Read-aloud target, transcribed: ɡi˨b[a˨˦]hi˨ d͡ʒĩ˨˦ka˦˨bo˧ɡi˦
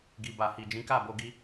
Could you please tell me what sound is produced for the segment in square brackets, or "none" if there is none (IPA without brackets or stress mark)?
a˨